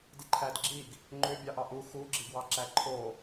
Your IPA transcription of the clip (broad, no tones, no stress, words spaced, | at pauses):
diǃʰædɡ͡ǁiɡ | ŋ͡ǃøbʲɑʔɑ ʔu xuɡ͡ǁiɡwɑǁæ ǃʰo